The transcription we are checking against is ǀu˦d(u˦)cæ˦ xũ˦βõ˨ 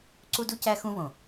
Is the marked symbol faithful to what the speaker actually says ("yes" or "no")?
yes